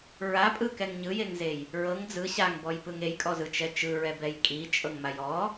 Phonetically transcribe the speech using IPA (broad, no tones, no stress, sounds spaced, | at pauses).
ɹ a pʼ ɯ k ɛ ŋ ɲ ɯ j e ŋ z e j | ɹ ɤ ŋ d͡z ɯ ɕ a ŋ b ɔ j p ɯ ŋ e j kʼ ɔ z ɯ t͡ʃ ɛ t͡ʃ ɯ ɹ ɛ b ɛ j kʼ i t͡ʃʼ ɤ ŋ m a j ɔ